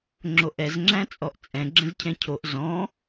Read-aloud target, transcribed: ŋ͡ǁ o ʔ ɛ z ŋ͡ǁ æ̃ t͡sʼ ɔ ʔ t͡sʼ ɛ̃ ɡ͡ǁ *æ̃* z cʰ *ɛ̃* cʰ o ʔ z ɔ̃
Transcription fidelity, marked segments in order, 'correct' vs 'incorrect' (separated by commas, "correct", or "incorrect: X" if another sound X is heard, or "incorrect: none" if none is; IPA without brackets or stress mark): incorrect: ə̃, correct